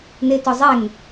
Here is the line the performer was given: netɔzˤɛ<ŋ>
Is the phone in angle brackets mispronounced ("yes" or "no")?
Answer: no